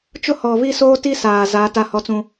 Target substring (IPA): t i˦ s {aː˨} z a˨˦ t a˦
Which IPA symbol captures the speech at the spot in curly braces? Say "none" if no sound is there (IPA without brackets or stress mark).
aː˨